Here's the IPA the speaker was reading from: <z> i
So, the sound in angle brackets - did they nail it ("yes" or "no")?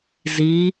yes